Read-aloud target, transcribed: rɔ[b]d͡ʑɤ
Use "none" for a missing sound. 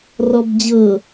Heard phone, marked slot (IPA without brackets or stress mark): b